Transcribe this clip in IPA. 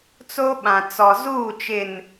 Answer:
t͡s o˦ ɓ ã˨ t͡s ɔ˨ z uː˦˨ t͡ʃ ɪ˨ n

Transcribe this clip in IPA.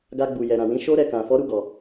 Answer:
ɡ a˧ ɡ͡b u˨ j ɛ˨ ɾ ã˨ w ĩ˨˦ ʃ o˦ ɾ ɛ˧ k ã˨ f ɔ˨˦ ɾ u˦˨ ɡ ɔ˨

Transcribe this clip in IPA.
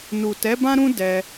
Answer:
n u˨ t ɛ˨˦ b ã˦ ɾ ũ˦ d ɛ˧

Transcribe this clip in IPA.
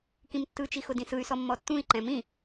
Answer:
k ĩ m tː ɯ t͡ʃ i x ʊ d ĩ s ɯ y̯ s ɔ mː ɔ tː ũ i̯ ǃ ɛ̃ m ĩ

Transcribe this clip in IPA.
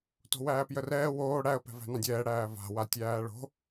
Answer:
t o̤ w æː p j ə r ɛː w oː ɽ æ ə̯ p ɛ̤ v æ̤ n ɑ̃ dʲ ɛː ɽ æː v a̤ w a tʲ æː ɭ o̤

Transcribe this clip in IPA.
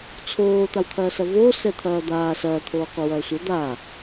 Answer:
t͡sʰ oː t̪ a w t̪ʰ ɐː s ɐ v oː s ɛ t̪ʰ ɐː d̪ aː s ɐː t̪ʰ oː qʷ ɐ w ɐː sʷ ɐ d̪ a

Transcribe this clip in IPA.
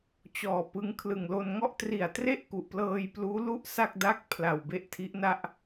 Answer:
t͡ɕ ɔː˨˩ p ɯ˦˥ ŋ kʰ l ɯ˨˩ ŋ l o˧ n ŋ ɔ˥˩ ʔ t r i˨˩ a̯ t r e˥˩ ʔ k u˨˩ ʔ p l ɤː˧ j p l uː˦˥ l u˥˩ ʔ s a˥˩ k̚ d a˥˩ k̚ pʰ l a˨˩ w b e˦˥ ʔ tʰ i˦˥ ʔ n a˥˩ ʔ

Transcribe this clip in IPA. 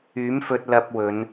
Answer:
yː˨˥ m f ɵ˧ t̚ l ɐ˧ p̚ w ɵ˨˧ n

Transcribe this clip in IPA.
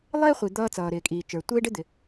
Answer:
lˠ ɪː˥ χʷ i˩ d̪ ʌː˧ t͡s ʌː˩ ɾ ɪː˩ kʼ iː˩ t͡ʃ ə˞˩ tʷ ɪː˥ ɖ ɪ˥ d̪ ɪ˩

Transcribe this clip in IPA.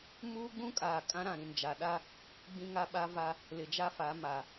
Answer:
m uː˦ ɡ͡b ũ˦ kʼ aː˨ kʼ ã˦ ɾ ã˨ ɾ ĩ˨ n d͡ʒ a˨ ɗ a˦ | ɡ͡b ĩ˦ ŋ a˦ ɓ a˦ v a˦ | l ɪ˨ d͡ʒ a˦ f a˨˦ m a˨

